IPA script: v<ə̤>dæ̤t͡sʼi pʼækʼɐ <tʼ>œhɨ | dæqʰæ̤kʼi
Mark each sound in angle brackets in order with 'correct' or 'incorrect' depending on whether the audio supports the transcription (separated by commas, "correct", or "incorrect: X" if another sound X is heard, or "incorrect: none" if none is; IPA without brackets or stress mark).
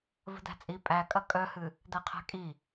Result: correct, incorrect: kʼ